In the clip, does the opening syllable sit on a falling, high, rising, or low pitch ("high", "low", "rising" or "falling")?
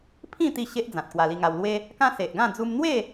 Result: falling